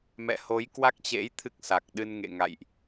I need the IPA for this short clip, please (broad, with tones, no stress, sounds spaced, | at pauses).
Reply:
m ɛ̰˧˨ h o˨˦ j k w a˦˥ k̚ t͡ɕ ḛ˧˥ j t̪ʰ ɨ˦˥ k̚ s a˨˩ k̚ ɗ ɨ˧ n ŋ ḛ˧˨ ŋ a̰˧˨ j ʔ